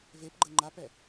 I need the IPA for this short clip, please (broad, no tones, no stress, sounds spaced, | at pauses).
v e p ɡ͡ǃ ə ŋ͡ǃ a p ɛ